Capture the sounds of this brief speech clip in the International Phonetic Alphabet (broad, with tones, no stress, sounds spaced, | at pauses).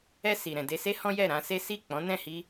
ɛ˧ s i˨ ɾ ɛ̃˨ d e˨ s e˧ h ɔ̃˦ j ɛ˦˨ ɾ ã˧ s e˦ s i˦˨ k͡p ɔ̃˨˦ n ɛ̃˦˨ h i˧